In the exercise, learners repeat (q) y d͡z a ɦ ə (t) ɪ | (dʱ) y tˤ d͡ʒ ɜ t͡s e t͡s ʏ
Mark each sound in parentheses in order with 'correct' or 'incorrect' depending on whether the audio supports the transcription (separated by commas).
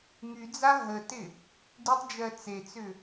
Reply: incorrect, correct, incorrect